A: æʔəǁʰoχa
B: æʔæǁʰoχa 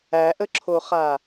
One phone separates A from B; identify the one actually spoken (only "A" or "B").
A